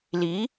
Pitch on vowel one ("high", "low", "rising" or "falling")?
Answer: rising